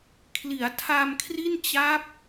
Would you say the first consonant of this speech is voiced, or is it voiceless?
voiceless